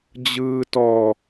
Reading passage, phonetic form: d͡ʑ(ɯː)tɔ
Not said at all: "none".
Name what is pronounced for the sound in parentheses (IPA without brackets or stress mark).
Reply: ɯː